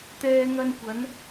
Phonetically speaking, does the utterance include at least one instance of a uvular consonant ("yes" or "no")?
no